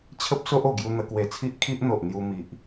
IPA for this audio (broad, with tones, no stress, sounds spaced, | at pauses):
t͡ɕʰ ə˦ p̚ s o˦ ʔ o˨˩ ɡ j u˧ n̪ ə˧ k w e˧ t͡sʰ i˦ ʔ kʰ i˦ ʔ n̪ o˨ ʔ n̪ j u˧ m i˨ ʔ